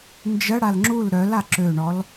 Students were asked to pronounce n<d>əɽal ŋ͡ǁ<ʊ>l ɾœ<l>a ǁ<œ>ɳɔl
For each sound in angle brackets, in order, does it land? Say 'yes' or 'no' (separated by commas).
no, no, yes, no